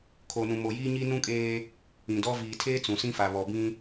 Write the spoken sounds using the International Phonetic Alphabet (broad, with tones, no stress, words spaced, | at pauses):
kʰo˨nũ˨ mo˨jiː˦ɲi˦ nũ˦kʼeː˦ | ĩ˨dɔ˦ viː˨tʰeː˦ t͡sũ˨sĩ˦ fa˨βɔ˨bĩ˦